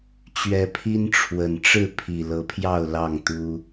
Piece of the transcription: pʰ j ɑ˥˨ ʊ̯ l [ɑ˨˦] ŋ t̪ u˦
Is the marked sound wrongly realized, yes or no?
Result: yes